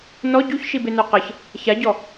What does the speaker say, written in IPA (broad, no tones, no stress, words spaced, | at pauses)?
nɔ ɟuçʃibenœ qəç | çaɟɔ